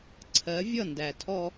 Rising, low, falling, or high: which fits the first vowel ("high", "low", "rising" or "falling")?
rising